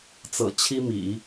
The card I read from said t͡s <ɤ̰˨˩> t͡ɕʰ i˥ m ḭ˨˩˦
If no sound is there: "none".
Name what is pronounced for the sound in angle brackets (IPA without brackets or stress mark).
ɤ̰˨˩